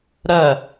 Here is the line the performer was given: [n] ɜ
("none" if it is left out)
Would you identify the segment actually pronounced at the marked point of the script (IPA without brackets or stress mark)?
ɾ